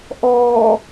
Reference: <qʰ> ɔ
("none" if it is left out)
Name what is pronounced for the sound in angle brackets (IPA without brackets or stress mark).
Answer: ʔ